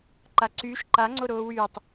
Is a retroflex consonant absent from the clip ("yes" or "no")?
yes